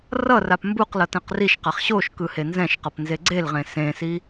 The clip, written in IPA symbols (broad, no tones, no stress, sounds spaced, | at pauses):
r ʌ r a p m b u q l ʌ t ɛ̃ q r i ʃ q a χ ɕ o ʃ k ɯ h e n z ɛ̃ ʃ q ʌ p n z e ɡ͡ǀ e l ʁ ẽ s ẽ s i